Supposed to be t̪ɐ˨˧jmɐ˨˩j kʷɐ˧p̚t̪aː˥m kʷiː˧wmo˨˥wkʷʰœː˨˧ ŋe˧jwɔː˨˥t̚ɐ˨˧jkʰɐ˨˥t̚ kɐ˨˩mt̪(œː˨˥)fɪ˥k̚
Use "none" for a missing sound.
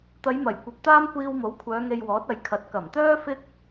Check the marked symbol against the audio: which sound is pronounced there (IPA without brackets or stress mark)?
œː˥